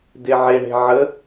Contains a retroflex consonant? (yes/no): yes